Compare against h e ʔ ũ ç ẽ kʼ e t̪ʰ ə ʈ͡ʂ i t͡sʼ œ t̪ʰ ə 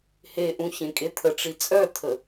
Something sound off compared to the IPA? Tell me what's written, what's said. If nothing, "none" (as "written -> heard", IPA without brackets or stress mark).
none